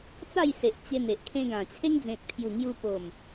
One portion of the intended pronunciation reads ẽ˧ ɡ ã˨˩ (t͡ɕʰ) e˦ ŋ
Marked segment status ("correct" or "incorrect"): correct